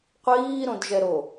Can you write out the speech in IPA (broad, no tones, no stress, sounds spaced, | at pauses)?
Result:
qʷ iː ɾ õ d ʒ ɛ ɾ o